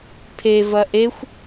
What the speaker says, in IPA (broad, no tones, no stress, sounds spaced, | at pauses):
pʰ e v ɐ ʔ e xʷ